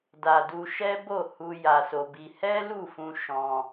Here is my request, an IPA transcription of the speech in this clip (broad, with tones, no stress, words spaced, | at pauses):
da˧du˧ʃɛ˦ bo˦˨hu˧ ja˧so˧bi˧ hɛ˦lu˦˨fũ˧ ʃɔ̃˧